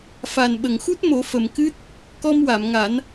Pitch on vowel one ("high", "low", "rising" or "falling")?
low